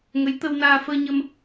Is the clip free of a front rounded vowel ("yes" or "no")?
yes